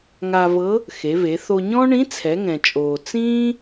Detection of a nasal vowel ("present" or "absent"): present